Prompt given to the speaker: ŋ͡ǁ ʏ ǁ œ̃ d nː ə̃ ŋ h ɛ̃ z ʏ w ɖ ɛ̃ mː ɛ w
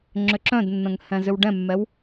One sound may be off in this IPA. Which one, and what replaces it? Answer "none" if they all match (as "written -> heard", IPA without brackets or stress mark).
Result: none